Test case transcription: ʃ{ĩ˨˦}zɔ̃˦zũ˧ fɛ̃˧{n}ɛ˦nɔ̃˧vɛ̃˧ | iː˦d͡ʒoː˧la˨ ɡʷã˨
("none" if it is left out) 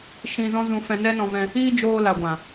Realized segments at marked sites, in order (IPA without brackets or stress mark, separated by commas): ĩ˧, n